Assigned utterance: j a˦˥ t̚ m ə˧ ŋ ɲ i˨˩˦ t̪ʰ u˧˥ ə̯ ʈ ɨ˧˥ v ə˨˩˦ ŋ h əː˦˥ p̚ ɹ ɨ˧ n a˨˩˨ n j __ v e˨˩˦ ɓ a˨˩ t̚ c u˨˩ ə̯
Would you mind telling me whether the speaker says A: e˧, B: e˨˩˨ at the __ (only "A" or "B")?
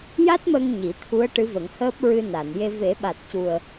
A